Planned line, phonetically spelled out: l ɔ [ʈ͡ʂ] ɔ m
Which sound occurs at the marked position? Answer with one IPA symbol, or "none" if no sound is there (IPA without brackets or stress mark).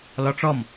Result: ʈ͡ʂ